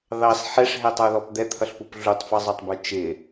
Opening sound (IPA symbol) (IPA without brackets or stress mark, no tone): ð